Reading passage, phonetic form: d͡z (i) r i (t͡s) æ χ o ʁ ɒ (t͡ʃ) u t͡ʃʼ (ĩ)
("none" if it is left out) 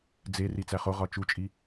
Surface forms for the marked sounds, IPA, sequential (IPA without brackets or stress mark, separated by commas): e, t͡s, t͡ʃ, i